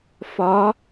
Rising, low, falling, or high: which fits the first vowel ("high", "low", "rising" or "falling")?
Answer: rising